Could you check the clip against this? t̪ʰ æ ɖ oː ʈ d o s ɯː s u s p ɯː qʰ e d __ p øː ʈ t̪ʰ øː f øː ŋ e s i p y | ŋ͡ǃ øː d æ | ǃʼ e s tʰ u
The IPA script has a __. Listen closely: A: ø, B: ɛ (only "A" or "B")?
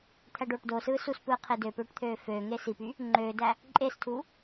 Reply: A